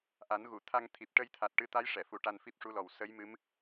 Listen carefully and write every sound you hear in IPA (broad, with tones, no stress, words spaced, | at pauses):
ʔa˨˩˦nɣu˨˩˨ t̪ʰa˧ŋt̪ʰi˨˩p̚ ʈə˧jt̪ʰa˨˩t̚ ʈɨ˧t̪a˧˥j ʂɛ˨˩˨fu˨˩˦ʈa˧n fi˦˥p̚ʂu˧˥lɔ˨˩w sə˧˥jmɨ˧˥m